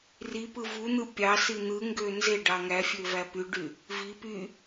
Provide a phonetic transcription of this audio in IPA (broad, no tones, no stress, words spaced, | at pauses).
ripɯ vun̪ɯ pʲɑsi n̪ɯŋɡø nze ɖɑŋæfʲø væpyɖy | vi py